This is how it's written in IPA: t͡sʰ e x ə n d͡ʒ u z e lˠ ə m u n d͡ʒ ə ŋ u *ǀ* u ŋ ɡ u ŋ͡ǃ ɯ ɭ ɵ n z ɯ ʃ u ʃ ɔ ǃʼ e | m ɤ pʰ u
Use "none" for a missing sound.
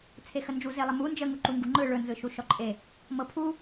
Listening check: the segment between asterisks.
ǃ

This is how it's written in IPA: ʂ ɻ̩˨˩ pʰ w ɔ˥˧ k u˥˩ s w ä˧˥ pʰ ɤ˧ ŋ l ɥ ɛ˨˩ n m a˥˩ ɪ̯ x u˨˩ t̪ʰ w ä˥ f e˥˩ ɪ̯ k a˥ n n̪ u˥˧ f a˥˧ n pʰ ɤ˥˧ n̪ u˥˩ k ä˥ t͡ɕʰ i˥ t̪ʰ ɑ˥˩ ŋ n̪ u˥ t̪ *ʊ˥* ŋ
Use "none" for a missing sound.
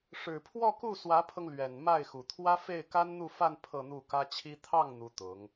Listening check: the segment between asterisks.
ʊ˧˥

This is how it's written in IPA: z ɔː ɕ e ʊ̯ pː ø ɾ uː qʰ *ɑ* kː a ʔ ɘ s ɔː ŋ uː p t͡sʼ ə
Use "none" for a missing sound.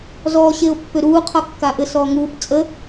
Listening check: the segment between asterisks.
ɒ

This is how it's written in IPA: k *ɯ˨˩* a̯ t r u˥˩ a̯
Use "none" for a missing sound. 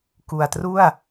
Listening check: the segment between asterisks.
u˨˩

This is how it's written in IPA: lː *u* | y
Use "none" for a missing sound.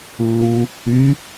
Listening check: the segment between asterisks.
u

